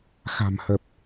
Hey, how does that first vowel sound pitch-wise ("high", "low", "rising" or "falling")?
low